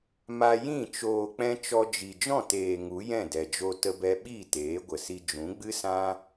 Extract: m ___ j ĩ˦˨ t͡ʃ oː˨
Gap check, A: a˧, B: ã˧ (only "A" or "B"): A